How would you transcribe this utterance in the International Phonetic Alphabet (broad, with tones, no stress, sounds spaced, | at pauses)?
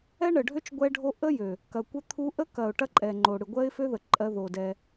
ɛ˦ ɳ ə˨ ɖʱ ø˦ t͡ʃ ɡʷ ɛ˦ ɖʱ o˦ ʔ ə˦ j ø˨ | k ɐ˨ kʷ ə˦ t̪ʰ u˦ ʔ ə˦ k ɐ˨ ʊ̯ ʈ ɐ˦ ǃʼ ɛ˨ ŋ͡ǃ o˨ ɽ ɨ˨ ɡʷ ɜ˦ ɪ̯ f ø˦ ð ə˨ ǃʼ ɜ˦ ð o˨ d ɛ˦